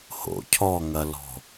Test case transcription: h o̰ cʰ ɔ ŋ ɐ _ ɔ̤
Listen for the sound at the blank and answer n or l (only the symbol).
l